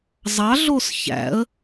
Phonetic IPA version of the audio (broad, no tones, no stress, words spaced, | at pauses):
zˤɑɮos çæ̰ə̯